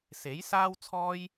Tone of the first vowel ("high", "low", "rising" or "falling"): rising